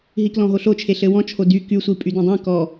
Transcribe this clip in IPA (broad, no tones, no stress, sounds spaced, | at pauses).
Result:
ɦ i k l ɔ̃ ɦ o ɬ o t͡ʃʰ e ɬ ɘ w ɔ̃ t͡ʃʰ o d y k y sʷ i pʼ y d õ dˤ ĩ k ɔ